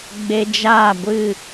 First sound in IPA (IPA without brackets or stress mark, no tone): ɡ͡b